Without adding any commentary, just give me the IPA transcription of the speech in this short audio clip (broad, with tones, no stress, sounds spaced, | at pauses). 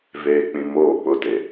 v eː˨ k͡p ĩ˨ m oː˦˨ k͡p ʊ˦˨ t e˨